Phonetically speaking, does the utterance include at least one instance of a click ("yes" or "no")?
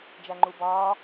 yes